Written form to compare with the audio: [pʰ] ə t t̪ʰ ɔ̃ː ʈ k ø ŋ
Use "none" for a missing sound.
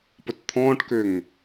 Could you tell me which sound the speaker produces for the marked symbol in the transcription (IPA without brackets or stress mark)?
p